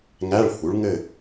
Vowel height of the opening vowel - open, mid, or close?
open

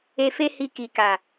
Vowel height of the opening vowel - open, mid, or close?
mid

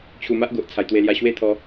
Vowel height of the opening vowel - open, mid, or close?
close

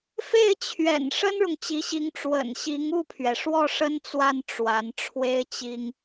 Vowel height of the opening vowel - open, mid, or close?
mid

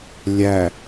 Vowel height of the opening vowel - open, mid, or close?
open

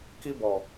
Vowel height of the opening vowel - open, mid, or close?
close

